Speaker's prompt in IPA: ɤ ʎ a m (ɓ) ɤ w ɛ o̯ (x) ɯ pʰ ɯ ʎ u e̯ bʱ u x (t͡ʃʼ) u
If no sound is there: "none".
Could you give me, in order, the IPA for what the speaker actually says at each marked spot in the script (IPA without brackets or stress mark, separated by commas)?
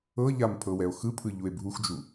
pʰ, x, d͡ʒ